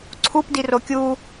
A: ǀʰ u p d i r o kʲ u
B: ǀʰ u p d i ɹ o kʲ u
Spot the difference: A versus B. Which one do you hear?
A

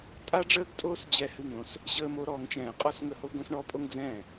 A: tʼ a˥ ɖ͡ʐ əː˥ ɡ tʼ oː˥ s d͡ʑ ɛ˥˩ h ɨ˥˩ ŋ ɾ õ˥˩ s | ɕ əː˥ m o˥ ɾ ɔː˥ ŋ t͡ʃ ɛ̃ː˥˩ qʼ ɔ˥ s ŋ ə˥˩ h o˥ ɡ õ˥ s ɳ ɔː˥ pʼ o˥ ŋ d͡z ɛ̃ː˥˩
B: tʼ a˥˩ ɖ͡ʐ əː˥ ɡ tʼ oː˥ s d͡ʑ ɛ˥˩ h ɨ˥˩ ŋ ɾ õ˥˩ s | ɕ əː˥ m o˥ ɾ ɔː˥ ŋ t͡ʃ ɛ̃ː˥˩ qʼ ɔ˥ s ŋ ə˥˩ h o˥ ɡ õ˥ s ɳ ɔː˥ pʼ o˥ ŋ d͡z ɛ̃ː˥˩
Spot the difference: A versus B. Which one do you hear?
A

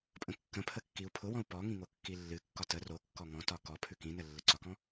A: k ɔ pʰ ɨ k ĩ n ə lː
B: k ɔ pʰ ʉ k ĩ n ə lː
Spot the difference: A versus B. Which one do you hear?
B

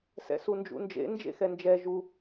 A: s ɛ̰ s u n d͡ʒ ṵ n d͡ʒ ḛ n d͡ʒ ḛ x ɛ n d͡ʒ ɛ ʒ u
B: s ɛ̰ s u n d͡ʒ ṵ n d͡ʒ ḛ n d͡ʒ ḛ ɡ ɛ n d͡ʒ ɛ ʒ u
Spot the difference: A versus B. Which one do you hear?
A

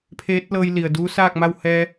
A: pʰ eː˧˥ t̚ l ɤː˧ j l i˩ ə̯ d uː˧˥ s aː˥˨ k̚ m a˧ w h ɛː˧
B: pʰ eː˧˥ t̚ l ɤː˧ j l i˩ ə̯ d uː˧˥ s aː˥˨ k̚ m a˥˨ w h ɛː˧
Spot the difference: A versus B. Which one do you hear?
B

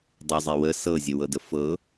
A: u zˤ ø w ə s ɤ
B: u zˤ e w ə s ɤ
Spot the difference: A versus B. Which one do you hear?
B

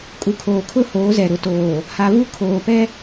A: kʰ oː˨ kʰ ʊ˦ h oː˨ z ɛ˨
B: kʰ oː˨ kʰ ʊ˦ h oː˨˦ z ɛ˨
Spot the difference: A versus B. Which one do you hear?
B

